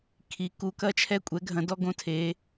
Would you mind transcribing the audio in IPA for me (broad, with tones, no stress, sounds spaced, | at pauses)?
kʰ i˧˥ k u˧˥ k ɐ˥ t͡ʃʰ ɛ˥ kʷʼ ɛ˧˥ ɡʱ ɐ̃˧˥ d ɔ˥ ɡ õ˥ tʰ e˧˥